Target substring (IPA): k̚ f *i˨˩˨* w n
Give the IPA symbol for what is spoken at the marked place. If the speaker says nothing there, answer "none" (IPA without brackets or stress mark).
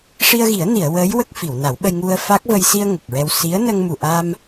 i˨˩˨